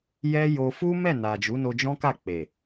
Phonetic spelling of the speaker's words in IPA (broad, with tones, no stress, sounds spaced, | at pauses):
j ɛ˦ j o˧ f u˦ m ɛ˦˨ n a˨ d͡ʒ u˨˦ n o˧ d͡ʒ ɔ̃˦ k a˦˨ k͡p e˨